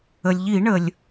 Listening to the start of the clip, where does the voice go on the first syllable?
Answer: low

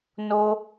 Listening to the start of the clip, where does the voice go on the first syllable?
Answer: high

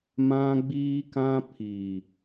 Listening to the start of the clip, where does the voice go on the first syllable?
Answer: high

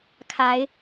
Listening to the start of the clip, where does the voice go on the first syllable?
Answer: rising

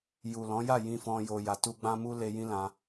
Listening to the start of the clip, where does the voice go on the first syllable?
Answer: low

